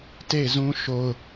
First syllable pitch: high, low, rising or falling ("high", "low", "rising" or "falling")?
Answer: falling